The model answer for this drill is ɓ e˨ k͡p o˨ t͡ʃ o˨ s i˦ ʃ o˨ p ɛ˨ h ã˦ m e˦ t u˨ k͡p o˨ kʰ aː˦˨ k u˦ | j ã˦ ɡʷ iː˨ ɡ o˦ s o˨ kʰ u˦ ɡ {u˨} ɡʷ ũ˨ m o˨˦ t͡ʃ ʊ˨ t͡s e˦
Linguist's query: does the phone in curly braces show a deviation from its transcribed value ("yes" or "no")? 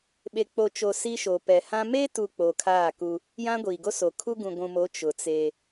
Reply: yes